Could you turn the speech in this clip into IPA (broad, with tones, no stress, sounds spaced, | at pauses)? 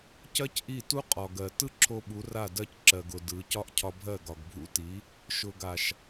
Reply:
c ɜ˦ c ʔ i˦˨ t u˦ qʼ ɒ˨ ɡ ɜ˨ t ɯ˦ ǁʰ o˧ ɓ u˨˦ r a˦˨ d ɜ˧ c ǁ ɜ˨ ɡ ʊ˨ d ɯ˨˦ c ɒ˦ ʔ cʰ ɒ˧ bʱ ɜ˦˨ ɡ ɒ˨ ɡ bʱ ṵ˧ t i˨˦ | ʃ ʊ˨ ɡ a˨ ʃ